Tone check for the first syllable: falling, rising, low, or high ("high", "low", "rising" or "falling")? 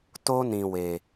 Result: high